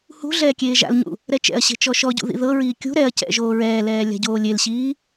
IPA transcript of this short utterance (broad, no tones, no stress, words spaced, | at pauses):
hṳ ɮɛːkʲeːʒa̰lɲṵ | ɾɛt͡ʃɛ̰ɐ̯ɕe̤ t͡ʃɔʃɔɟṵ ðḭðɤɹiː kʲṳ ɾɛɐ̯ cɛ̰ʒoːɹɛːlɛː lʲa̤ɟoːlʲelɕiː